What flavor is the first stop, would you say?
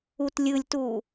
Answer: plain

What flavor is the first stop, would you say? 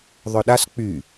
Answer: implosive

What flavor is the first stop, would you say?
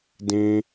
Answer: plain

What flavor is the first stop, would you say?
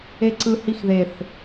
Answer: click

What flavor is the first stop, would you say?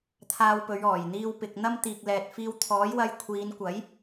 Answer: aspirated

